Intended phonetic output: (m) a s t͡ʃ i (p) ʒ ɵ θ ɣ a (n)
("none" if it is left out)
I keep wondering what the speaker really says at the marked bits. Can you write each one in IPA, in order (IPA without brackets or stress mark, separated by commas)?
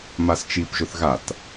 m, p, t